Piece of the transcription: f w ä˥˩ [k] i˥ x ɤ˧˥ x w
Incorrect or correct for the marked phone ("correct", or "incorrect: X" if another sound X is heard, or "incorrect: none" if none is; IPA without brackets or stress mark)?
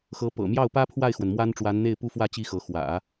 incorrect: t͡ɕ